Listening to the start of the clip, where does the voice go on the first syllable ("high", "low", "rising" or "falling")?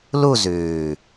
falling